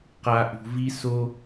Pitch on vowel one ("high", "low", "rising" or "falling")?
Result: low